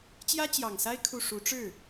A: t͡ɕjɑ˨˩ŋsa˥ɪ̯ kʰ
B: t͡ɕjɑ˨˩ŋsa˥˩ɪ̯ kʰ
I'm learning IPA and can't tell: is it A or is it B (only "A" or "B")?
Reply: A